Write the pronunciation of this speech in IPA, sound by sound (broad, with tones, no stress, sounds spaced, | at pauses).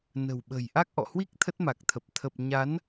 n ə̤˨˩ w ɓ ə̤˨˩ j ʔ a˦˥ k̚ ʔ ɔ̰˧˨ h w i˦˥ k̚ t̪ʰ ə˦˥ t̚ m a˨˩ k̚ t̪ʰ ə˨˩ p̚ t̪ʰ ə˨˩ p̚ ɲ a˨˦ n